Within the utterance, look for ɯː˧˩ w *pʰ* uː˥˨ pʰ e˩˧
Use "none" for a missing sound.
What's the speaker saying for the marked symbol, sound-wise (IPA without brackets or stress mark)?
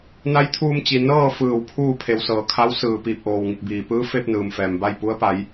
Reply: pʰ